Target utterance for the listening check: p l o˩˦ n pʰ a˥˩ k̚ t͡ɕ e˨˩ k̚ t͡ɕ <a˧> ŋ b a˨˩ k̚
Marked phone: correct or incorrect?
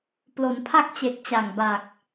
incorrect